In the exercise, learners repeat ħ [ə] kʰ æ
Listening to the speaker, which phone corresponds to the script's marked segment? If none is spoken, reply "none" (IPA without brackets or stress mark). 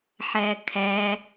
æ